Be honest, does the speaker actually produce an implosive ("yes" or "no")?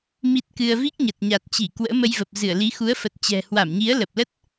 no